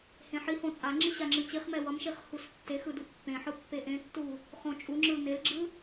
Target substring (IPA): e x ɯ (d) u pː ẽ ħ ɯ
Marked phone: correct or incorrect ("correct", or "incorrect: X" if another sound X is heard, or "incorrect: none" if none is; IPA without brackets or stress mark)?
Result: correct